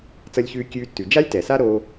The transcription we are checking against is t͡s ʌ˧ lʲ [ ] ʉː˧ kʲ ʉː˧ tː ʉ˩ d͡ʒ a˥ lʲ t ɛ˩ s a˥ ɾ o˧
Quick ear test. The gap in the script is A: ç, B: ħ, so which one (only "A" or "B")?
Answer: A